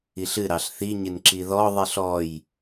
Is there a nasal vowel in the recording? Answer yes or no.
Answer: no